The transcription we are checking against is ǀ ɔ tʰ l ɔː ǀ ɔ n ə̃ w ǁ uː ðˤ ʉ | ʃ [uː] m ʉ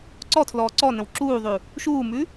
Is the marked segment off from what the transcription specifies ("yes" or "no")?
no